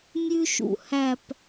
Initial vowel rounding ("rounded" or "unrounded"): rounded